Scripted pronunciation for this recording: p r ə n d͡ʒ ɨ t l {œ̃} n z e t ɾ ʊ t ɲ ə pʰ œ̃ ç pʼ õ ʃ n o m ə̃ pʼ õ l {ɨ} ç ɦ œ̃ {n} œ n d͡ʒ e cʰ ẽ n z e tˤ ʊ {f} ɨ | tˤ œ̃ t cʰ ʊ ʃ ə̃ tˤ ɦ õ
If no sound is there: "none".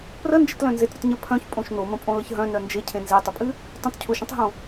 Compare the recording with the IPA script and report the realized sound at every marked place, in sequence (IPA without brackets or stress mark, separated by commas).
œ̃, ə, n, pʼ